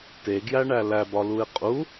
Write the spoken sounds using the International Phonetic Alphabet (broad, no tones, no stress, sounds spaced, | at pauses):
t e ɡ j æ ɳ æ l æ b ɒ l u ɪ̯ qʼ u